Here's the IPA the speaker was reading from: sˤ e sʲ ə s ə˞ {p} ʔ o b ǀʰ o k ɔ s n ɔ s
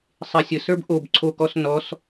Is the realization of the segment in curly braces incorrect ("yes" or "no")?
yes